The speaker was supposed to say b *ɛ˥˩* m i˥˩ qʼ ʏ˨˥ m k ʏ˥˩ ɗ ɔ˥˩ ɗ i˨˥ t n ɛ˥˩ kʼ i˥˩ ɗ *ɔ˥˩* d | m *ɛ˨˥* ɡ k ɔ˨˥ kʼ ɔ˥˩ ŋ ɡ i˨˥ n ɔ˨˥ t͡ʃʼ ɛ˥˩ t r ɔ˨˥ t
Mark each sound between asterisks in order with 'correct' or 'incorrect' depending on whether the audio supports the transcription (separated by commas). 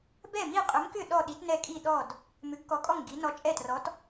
correct, correct, incorrect